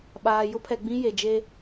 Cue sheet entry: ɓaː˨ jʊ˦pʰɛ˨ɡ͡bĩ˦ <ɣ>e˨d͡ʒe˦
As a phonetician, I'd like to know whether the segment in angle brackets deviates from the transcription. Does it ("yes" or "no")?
yes